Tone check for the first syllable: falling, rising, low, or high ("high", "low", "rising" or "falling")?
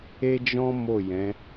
high